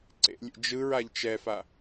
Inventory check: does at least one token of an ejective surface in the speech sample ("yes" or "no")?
no